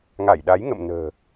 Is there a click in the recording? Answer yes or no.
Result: no